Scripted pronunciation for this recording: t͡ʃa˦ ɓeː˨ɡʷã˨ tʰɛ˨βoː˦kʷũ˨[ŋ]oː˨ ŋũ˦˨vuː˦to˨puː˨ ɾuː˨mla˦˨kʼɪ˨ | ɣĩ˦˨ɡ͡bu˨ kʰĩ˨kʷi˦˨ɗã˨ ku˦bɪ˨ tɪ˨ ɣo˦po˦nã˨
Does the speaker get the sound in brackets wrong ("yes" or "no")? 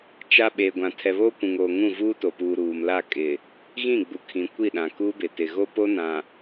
no